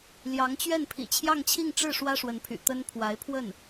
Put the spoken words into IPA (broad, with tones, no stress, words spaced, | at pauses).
ljɑ˧˥ŋt͡ɕɥɛ˥˩npʰḭ˨˩ t͡ɕʰjɑ˥˧ŋt͡ɕʰi˥˧ŋ ʈ͡ʂɻ̩˥˩ ʂwä˥ʂwə˧˥npʰy̰˨˩ t̪ə˥n pʰwa˧˥ɪ̯pʰwə˥˩n